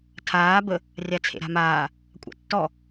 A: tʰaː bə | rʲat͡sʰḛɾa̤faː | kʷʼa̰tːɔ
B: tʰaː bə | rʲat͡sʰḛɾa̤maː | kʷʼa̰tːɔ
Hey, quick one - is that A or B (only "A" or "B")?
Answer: B